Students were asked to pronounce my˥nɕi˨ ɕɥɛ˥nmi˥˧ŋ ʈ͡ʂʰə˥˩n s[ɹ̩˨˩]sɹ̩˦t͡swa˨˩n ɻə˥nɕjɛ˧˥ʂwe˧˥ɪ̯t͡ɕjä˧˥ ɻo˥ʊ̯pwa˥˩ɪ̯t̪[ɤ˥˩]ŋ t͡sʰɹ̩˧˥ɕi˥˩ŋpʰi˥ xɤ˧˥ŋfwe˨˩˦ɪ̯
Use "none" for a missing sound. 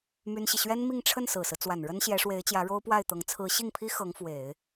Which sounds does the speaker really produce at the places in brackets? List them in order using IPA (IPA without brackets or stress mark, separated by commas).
ɹ̩˨˩, ɤ˧˥